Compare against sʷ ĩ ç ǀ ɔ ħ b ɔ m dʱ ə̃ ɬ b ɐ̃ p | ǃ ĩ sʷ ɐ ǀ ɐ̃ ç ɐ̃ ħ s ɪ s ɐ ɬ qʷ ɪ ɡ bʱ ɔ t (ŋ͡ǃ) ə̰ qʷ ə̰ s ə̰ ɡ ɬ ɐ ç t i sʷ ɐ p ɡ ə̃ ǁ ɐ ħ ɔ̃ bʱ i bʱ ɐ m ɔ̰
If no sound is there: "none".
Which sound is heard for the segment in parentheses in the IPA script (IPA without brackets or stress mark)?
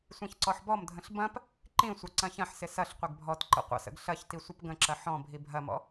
ǃ